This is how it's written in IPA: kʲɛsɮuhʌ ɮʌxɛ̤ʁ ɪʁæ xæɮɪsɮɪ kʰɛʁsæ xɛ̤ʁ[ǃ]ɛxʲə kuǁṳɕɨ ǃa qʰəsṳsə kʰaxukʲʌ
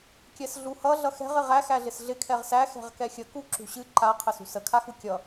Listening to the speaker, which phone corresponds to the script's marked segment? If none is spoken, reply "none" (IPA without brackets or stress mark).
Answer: k